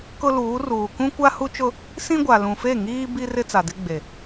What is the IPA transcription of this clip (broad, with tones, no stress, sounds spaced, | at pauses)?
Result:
k ʊ˦ l uː˨˦ r uː˨ k ũ˦ kʷ a˦ h u˦ t͡ʃ ʊ˦ | s ĩ˦ ɡʷ a˨ l ũ˨ f e˦˨ ŋ iː˦ b i˦ r ɪ˦ t͡s a˨ d ɪ˦ ɡ͡b e˨